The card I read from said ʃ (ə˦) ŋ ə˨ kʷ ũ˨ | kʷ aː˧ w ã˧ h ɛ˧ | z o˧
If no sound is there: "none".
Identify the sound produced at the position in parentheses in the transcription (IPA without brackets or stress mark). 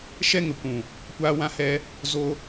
ɛ˦